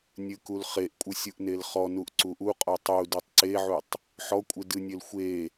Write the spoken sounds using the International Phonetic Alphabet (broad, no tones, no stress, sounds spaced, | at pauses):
nʲ ɨ k u l χ e ʔ kʷʼ ɨ sʲ u ʔ n e l χ ɔ n u ʔ ǀ u ʔ u qʼ ɔ tˤ u d u tˤ ǀ e ʕ u tˤ | ħ ɔ kʷʼ ɨ d ɨ nʲ e l xʷ e